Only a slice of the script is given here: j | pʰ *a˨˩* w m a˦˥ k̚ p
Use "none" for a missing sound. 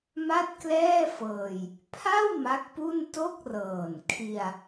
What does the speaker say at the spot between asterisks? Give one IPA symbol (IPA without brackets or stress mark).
a˥˩